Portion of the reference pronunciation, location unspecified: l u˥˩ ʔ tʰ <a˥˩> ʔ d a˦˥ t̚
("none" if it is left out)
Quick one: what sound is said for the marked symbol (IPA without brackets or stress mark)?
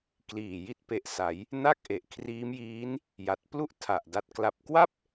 a˨˩